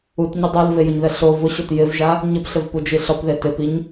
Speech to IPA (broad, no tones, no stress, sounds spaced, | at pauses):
u t ɲ ɪ dˤ a l v e j ʊ ɲ ð ɛ ɬ o v ʊ ɕ o t j ɪ v ʒ a | ɲ ɪ p ɬ ɪ v p u d͡ʒ i ɬ ɔ p ð e t ɪ p i ɲ